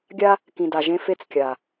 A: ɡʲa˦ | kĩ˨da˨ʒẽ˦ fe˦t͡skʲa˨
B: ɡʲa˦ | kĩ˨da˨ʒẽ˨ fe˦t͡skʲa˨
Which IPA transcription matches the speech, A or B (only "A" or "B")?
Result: A